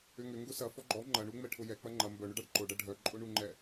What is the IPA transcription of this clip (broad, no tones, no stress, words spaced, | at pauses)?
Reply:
ʏŋʏ ŋɡʊsɐ fɔɡ͡ǃɔ ŋ͡ǃɐɳu ŋ͡mɛʈʰʊjɛ k͡pɐŋ͡ǃɐ mbœɳʊɖaɖ ǃʊɖɐ ɖʱœǃʼʊɳuŋ͡ǃɛ